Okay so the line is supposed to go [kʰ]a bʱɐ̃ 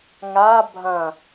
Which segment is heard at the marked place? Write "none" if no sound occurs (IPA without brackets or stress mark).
ŋ